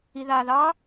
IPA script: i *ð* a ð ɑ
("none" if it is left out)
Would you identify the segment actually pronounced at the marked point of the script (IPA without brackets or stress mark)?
ð